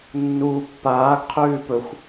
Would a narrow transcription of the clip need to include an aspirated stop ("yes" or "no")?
yes